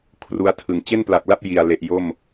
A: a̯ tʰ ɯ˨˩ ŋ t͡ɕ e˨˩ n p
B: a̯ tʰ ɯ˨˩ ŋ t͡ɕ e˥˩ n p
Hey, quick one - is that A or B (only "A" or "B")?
B